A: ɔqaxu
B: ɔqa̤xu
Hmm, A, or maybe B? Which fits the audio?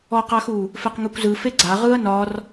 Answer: A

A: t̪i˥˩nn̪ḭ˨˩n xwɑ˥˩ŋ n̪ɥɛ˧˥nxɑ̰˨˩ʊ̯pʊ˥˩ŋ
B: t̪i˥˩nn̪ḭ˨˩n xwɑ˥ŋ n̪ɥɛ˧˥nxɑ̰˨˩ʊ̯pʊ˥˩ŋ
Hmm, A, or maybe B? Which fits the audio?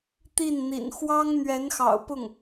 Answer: B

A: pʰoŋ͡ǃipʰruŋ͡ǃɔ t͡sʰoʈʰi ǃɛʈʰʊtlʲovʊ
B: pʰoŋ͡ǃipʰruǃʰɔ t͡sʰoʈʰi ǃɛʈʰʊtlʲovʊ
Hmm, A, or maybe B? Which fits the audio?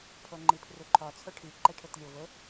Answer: B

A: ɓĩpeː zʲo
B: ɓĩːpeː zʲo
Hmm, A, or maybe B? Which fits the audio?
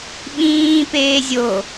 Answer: B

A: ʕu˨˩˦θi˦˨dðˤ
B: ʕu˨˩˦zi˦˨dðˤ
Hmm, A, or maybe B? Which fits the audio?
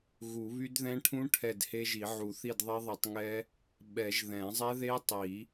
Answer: A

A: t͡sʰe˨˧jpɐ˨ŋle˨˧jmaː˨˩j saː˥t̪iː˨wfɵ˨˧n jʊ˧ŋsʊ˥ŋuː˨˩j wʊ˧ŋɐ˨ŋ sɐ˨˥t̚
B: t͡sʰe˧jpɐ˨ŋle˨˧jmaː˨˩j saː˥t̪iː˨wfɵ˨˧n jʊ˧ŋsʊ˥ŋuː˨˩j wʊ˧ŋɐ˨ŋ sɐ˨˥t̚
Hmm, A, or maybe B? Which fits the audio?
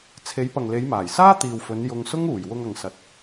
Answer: A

